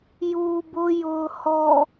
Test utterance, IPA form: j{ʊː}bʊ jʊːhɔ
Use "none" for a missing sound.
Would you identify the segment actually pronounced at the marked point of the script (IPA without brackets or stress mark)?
uː